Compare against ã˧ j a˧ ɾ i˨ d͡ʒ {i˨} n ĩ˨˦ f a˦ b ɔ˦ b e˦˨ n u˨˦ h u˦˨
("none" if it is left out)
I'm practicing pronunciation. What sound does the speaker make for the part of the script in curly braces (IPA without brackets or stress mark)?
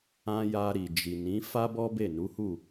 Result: i˨